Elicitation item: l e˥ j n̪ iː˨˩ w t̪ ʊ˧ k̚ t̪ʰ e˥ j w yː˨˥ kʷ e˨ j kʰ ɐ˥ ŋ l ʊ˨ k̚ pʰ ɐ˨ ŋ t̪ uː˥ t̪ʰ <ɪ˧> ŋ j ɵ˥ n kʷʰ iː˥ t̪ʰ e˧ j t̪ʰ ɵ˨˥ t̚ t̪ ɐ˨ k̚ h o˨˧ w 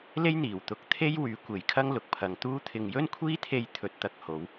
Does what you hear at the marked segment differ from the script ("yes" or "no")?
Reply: no